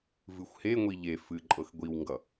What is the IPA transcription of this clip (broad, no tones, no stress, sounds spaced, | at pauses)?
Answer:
v ɨ xʷ h e ŋʷ i ʎ e f ɨ ǃʼ ɤ x ɡʷ i w ŋ ɡ ʌ